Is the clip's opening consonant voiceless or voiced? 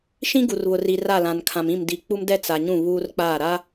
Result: voiceless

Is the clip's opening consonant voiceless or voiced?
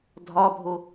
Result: voiced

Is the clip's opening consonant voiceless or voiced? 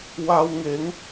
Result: voiced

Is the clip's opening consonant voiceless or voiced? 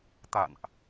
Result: voiceless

